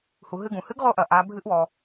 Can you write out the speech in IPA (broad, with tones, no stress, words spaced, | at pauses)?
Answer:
hu˩˧ɦɨ˧ɡũ˩ hɨ˧˥ɡʁo˧ʔɐ˩ ʔa˩˧ bʱɨ˧ʔwɔ˩